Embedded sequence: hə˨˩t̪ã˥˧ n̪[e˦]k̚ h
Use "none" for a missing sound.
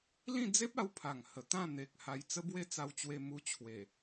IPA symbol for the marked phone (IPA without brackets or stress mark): e˨